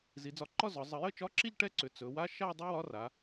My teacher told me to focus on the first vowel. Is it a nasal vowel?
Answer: no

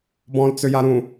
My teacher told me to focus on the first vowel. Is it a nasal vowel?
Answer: yes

